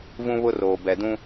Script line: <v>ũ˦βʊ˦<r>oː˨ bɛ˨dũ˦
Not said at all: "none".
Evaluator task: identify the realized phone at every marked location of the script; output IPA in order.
v, r

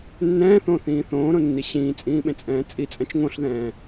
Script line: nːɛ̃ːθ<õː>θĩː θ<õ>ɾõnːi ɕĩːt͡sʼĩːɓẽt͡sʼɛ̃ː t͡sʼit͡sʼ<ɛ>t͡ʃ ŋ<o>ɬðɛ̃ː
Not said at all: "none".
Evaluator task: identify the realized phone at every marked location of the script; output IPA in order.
õː, õː, ɛ̃, õ

